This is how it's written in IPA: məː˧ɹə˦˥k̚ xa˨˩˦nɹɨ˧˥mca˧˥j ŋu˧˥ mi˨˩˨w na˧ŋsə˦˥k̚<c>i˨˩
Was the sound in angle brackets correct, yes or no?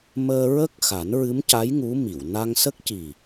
yes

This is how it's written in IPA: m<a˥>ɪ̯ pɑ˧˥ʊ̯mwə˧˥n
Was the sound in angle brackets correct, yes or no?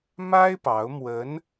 yes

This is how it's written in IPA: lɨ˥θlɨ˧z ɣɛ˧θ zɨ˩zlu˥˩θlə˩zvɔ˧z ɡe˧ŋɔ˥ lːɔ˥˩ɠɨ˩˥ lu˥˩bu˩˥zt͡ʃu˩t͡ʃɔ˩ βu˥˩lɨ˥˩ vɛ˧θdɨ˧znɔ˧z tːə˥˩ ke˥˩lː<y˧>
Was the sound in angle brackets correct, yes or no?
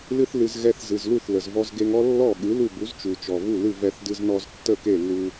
no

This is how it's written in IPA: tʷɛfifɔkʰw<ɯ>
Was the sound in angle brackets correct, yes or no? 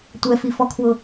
no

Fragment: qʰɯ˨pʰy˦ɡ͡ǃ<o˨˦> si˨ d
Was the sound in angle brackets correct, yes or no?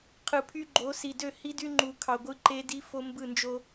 yes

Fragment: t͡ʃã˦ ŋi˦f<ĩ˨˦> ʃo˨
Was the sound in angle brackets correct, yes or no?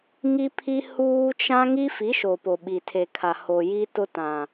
no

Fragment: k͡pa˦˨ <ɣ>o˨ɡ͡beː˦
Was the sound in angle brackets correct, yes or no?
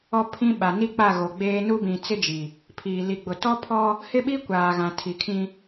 yes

